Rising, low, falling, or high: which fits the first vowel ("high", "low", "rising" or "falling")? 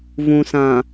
low